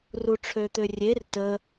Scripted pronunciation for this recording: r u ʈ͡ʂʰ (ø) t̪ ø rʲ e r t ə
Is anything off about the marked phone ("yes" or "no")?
no